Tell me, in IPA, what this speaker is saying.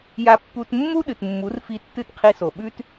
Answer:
ja˧pːu˧t mːu˦ɗɨ˨tmːu˨˦rfi˧ tːɨ˦˨tqʰi˧so˨ɓʉ˦t

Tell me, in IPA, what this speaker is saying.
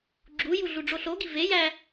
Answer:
ɡ͡ǁuju ɮuɖ͡ʐoɬoɡi vejæ

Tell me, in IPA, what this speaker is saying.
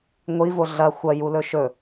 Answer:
ŋʷivo ɮɐ xʷɐjulɵ ʃɵ

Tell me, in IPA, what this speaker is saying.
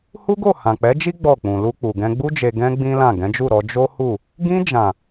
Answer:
hu˦ɡo˦˨hã˨ k͡pɛ˨˦d͡ʒi˦ ɡ͡bɔ˦˨k͡pũ˨ lu˧k͡pu˨ɡɛ̃˧ ɡ͡bu˧d͡ʒe˨ ɡɛ̃˧ ɡ͡bĩ˦lã˦˨ ɡɛ̃˨˦d͡ʒu˦˨ ɾɔ˧ d͡ʒo˦hu˦˨ | ɡĩ˧d͡ʒã˨

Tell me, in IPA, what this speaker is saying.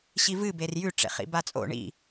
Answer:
ɕivɨ berjʉ ʈ͡ʂḛχḭbat͡sʼo̰ ɳḭ

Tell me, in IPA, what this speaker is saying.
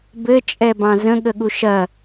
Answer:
bɘt͡ʃʼɛbɑ̃z ə̃ɠəɠu ʃɐ

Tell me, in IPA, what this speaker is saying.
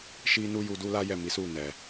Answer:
ʃi˦ nu˦ju˧du˦la˦ jɛ˦˨mi˨˦su˦˨nɛ˨

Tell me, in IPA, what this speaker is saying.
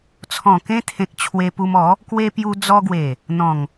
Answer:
t͡sʰɔ̃˨˩kẽ˧t̪ʰẽ˨k̚ t͡ɕʰwe˧pu˧m ɔ˨˦ | kwe˧pju˧ d͡zɔ˧ɡwe˨˩ | n̪ɔ̃˨˩ŋ

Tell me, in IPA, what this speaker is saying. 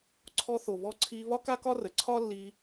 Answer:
ǀʰɔ˧θo˩βɔ˧ ǀʰi˧ βɒ˥ka˥kɒ˥rə˩ ǀʰɒ˥lːi˧

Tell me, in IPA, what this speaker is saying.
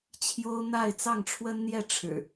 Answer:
t͡ɕʰjo˦ʊ̯n̪a˥˨ɪ̯ t͡sɑ˥˨ŋʈ͡ʂʰwə˦nn̪jɛ˥˨ ʈ͡ʂʰɻ̩˨˩

